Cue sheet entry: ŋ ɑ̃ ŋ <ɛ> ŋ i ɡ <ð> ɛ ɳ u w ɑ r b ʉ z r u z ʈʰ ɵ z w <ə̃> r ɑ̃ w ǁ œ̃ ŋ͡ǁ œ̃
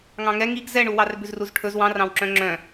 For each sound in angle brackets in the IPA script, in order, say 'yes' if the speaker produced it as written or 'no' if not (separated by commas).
yes, no, no